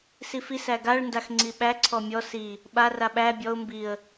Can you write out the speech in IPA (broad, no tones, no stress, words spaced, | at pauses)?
sifis æɡaɭ ndaxŋ͡ǀiɓæ ǀʰɔmʲɔ si | ɓa raɓæ bʲɔʊ̯ mbiə̯